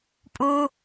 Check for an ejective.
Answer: present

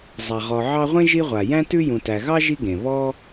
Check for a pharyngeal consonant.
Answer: present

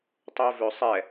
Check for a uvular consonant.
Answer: absent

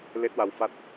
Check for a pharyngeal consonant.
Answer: absent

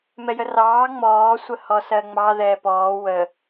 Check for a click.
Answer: absent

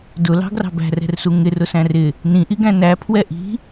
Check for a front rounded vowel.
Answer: absent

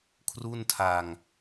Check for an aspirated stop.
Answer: present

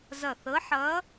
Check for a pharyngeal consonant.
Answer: present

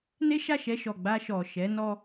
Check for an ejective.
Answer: absent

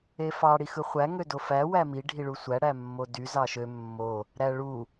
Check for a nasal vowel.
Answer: absent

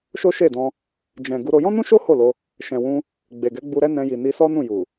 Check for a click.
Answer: absent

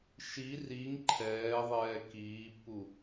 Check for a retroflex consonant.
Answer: absent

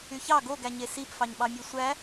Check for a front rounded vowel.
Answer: present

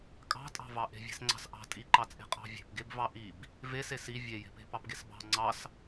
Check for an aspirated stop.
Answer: absent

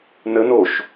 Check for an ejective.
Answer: absent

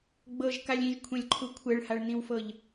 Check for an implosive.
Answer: absent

